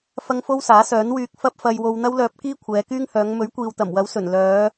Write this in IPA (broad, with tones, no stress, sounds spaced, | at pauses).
f ɐ˥ ŋ f o˥ w s aː˨˥ s œː˨˥ n w yː˧ k̚ f ɐ˥ p̚ f ɐ˧ j w o˧ w n̪ ɐ˥ w l œː˧ p̚ k iː˥ kʷʰ ɛː˨˧ k yː˥ ŋ h œː˨˧ ŋ m ɵ˨˥ ɥ kʷ iː˨ w t̪ ɐ˨˩ m w ɐ˨˥ w s ɵ˨˩ n l œː˨˧